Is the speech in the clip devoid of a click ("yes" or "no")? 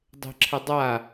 no